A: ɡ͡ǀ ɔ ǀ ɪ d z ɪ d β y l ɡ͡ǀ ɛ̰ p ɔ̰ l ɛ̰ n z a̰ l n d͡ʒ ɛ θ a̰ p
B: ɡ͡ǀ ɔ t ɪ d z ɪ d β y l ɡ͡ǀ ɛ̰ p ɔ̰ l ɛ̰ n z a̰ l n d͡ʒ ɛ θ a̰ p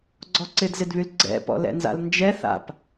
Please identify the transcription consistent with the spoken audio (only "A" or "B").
A